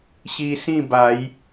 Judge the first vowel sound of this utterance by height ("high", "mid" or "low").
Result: high